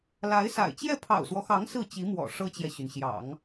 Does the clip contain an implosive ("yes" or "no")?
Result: no